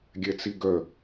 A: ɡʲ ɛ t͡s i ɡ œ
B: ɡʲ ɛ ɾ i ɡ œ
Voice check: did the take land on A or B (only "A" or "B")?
A